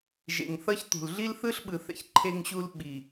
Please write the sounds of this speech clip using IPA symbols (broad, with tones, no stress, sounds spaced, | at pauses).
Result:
ʒ ḛ˨ ŋ θ ʌ˦ ç t̪ ṳ˨ l ɮ i˦ l θ ɯ˦ ɬ ɓ ɯ˨ θ ɛ̰˨ ç ǃʰ e˦ ŋ ɕ u˦ l ɓ i˨